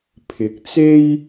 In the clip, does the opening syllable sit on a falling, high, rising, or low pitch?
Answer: rising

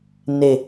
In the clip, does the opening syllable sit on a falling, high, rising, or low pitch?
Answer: low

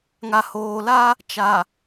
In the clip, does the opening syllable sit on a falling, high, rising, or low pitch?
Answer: low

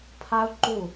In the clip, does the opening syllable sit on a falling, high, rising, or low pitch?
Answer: high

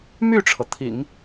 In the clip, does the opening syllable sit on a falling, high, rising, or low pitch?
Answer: falling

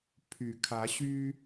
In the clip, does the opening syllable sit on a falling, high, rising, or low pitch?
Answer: low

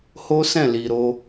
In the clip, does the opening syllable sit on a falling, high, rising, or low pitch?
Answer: high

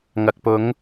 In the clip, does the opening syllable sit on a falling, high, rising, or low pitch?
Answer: low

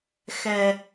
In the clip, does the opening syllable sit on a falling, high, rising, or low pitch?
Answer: low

